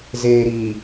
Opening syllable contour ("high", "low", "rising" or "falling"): low